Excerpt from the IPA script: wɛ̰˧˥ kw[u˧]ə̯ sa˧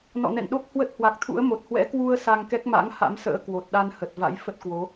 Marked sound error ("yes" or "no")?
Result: no